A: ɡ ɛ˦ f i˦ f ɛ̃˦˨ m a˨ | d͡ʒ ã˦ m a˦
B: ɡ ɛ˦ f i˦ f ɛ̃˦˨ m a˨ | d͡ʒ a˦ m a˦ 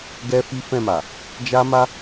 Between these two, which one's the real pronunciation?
B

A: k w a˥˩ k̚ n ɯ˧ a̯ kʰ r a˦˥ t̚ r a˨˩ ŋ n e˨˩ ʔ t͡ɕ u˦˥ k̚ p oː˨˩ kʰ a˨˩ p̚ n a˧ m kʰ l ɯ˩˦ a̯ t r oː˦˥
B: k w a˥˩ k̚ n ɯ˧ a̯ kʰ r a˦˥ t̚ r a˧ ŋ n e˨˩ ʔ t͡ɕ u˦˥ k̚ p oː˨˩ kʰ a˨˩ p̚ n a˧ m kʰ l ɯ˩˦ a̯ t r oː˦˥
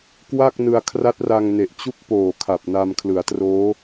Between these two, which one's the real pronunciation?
B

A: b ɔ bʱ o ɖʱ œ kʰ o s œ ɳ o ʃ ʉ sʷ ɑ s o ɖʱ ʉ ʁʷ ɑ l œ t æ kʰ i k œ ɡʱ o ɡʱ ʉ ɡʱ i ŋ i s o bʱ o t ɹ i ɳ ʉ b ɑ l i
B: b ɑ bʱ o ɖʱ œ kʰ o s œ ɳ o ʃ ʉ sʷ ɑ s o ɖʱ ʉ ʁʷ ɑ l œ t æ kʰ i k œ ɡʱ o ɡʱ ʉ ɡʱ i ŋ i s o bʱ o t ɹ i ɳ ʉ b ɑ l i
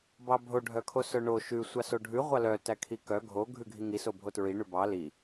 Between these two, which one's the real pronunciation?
B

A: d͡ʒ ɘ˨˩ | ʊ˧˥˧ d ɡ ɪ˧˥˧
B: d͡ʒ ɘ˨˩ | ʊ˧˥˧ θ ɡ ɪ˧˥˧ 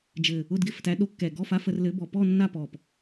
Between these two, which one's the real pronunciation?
A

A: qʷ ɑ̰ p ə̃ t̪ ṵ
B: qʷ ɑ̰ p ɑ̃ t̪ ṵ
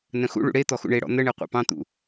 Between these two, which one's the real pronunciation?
B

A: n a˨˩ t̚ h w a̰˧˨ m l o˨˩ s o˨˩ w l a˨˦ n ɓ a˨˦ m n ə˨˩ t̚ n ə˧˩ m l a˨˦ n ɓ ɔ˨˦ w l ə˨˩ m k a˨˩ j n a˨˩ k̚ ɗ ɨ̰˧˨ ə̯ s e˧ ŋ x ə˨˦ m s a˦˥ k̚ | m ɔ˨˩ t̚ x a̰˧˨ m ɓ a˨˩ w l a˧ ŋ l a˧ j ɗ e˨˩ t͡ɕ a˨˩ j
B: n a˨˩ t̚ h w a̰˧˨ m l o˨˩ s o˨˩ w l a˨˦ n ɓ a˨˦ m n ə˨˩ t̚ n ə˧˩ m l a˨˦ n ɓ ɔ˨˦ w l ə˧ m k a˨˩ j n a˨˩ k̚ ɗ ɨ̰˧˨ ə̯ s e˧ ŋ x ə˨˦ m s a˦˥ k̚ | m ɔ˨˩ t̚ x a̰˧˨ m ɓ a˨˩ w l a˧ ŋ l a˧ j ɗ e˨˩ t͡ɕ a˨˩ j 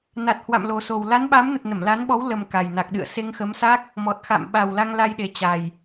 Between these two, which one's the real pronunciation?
A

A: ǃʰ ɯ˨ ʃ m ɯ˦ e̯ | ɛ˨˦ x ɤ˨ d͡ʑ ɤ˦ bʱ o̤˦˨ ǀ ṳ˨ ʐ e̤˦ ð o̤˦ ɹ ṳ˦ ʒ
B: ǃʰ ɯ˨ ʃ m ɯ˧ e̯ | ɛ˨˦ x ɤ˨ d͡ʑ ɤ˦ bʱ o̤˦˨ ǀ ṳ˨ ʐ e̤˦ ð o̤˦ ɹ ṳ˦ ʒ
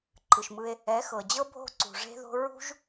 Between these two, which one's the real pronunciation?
B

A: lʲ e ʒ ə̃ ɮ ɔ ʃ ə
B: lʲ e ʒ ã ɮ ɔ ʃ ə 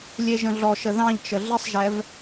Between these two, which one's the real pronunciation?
A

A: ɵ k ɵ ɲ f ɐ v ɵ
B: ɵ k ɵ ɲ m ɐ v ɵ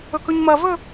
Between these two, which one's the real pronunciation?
B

